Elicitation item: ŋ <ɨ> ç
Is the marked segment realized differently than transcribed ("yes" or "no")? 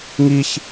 yes